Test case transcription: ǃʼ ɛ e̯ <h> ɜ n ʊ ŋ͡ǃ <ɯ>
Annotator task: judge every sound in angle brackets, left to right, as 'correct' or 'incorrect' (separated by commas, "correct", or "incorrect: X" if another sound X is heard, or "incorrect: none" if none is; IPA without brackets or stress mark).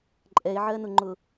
incorrect: ʕ, incorrect: ʊ